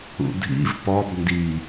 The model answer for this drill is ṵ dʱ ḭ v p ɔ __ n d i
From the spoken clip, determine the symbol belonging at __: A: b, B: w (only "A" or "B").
A